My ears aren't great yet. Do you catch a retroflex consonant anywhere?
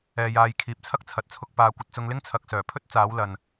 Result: no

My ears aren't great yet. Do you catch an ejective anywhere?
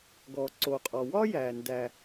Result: yes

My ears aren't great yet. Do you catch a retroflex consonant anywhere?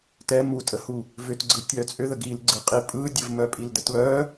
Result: no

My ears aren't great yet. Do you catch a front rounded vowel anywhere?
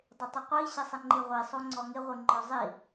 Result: no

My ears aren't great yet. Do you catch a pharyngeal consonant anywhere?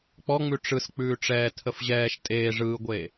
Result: no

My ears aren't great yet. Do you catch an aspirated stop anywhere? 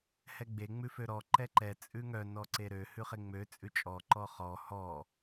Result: no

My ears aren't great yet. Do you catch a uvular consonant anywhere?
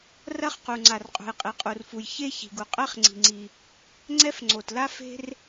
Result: yes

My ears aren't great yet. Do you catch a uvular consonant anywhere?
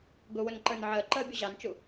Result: no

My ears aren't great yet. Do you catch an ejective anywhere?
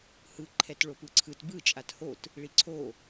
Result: yes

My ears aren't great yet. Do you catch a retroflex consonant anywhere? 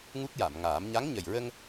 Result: no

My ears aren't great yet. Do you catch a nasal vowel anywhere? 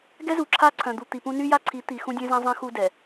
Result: yes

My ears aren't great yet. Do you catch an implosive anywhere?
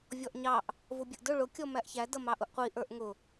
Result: no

